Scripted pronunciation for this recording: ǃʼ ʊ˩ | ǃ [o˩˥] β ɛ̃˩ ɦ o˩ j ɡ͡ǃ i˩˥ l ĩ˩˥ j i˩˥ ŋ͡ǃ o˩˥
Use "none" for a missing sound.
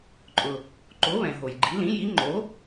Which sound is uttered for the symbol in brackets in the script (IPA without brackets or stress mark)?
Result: o˩˥